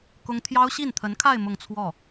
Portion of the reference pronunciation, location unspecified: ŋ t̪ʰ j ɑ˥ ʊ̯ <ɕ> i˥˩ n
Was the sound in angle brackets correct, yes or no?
yes